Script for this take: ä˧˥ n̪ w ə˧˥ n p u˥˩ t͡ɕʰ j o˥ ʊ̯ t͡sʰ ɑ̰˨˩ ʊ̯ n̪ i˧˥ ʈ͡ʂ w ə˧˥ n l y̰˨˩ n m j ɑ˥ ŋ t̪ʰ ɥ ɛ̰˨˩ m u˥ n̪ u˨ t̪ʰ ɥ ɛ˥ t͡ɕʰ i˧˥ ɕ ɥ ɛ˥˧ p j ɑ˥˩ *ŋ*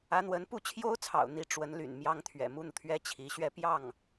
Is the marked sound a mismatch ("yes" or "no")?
no